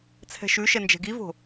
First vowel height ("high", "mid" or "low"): mid